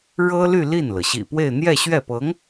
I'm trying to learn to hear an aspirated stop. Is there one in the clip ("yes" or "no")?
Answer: no